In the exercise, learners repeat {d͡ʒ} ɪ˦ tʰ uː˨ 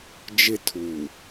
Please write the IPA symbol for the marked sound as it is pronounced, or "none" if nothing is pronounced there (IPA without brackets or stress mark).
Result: d͡ʒ